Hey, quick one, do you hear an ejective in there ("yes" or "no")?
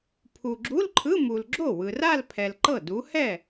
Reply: no